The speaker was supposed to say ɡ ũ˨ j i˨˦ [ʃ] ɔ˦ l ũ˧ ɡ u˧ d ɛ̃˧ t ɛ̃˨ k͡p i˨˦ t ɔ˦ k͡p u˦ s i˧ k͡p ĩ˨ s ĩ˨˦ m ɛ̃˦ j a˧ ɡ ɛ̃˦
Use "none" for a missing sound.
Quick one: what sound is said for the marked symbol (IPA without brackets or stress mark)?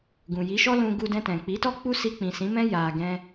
ʃ